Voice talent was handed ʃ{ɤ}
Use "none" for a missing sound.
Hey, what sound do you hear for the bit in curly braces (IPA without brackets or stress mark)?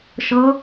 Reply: ɤ